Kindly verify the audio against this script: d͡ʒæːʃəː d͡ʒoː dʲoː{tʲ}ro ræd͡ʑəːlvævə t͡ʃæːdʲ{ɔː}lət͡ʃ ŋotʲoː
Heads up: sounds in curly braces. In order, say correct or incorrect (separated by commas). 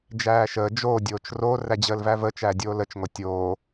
incorrect, incorrect